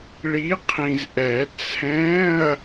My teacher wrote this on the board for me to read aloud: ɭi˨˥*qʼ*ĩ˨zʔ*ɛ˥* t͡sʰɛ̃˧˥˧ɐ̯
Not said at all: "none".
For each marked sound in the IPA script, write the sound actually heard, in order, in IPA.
qʰ, ɛ˨˩˦

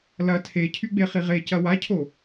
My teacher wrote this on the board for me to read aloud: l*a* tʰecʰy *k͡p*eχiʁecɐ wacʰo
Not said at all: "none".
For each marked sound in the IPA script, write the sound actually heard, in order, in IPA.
ɐ, ɡ͡b

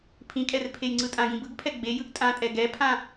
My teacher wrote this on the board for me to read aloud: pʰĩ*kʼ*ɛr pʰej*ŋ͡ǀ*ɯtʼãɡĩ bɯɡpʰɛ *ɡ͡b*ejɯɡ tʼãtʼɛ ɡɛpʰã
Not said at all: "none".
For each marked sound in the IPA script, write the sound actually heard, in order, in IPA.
kʼ, ŋ͡ǀ, ɡ͡b

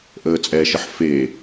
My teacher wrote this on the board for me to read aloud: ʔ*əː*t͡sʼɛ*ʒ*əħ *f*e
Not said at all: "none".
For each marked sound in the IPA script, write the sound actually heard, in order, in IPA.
əː, ʃ, f

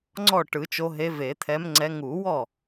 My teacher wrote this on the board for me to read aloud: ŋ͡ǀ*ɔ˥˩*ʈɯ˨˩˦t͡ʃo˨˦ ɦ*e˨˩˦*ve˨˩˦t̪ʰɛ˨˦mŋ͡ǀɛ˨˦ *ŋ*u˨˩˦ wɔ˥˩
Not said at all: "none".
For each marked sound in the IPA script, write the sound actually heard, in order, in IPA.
ɔ˥˩, e˨˦, ŋ

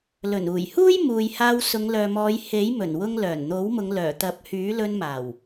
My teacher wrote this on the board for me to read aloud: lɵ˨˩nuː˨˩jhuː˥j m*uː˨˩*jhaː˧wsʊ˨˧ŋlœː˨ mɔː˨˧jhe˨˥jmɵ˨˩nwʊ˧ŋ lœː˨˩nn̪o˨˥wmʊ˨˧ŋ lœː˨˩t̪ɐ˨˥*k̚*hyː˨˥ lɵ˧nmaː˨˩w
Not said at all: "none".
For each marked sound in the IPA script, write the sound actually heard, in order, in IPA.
uː˨, p̚

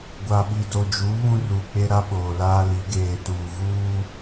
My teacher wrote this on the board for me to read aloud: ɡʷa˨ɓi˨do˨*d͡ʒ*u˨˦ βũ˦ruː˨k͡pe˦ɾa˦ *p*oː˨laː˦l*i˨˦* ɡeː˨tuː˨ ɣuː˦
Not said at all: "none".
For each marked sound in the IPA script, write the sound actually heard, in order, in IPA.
d͡ʒ, ɓ, i˨˦

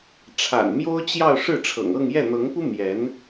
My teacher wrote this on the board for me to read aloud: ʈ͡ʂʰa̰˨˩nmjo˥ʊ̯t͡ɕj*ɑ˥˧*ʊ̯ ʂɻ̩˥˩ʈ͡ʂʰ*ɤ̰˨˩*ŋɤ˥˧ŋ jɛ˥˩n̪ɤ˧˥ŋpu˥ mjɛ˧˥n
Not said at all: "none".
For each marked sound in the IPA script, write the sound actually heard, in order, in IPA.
ɑ˥˧, ɤ̰˨˩

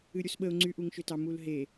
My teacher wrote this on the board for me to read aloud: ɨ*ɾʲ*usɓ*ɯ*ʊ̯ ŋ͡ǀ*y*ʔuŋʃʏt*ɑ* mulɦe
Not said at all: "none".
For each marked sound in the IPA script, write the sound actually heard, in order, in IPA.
ɾʲ, ə, y, ɑ

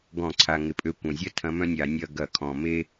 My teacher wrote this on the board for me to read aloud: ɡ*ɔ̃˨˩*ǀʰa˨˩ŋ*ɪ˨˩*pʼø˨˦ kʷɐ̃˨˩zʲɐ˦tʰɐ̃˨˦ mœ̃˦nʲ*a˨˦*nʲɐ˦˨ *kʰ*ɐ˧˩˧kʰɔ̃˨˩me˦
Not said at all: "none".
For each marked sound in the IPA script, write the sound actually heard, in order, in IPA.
ɔ̃˧˩˧, ɪ˨˩, a˧˩˧, ɡ

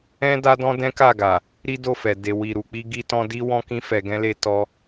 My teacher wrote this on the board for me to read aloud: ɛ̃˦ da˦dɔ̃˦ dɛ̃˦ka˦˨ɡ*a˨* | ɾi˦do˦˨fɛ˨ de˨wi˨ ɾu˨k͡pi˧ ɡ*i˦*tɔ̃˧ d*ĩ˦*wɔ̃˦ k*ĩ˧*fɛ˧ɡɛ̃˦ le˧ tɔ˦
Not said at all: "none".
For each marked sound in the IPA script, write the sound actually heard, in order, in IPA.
a˨, i˧, i˦, ĩ˦

